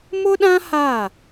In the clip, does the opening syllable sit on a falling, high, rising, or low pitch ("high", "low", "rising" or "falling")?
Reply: high